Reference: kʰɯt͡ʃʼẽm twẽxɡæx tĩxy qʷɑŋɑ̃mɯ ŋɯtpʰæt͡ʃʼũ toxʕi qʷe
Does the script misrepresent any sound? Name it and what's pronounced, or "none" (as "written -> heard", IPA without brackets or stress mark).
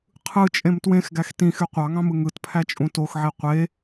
kʰ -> qʰ